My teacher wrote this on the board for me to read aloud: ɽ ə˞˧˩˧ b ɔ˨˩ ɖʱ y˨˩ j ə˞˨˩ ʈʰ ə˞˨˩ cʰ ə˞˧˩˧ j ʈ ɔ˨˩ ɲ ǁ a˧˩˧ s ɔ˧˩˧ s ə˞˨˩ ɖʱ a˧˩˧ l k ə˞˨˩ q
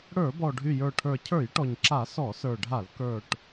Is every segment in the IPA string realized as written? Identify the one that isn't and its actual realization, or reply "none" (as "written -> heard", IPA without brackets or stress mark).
q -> ʈ